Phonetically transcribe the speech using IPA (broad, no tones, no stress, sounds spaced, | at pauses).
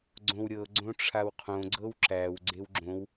ɡ͡ǀ õ w ɾʲ ɤ ɡ͡ǀ õ ʈ͡ʂʰ a w qʰ õ ɡ͡ǀ ɤ w ǁ æ w ɡ͡ǀ e w ɡ͡ǁ õ w